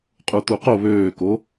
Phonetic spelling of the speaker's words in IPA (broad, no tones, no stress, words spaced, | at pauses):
qʼut̪uqo βøːko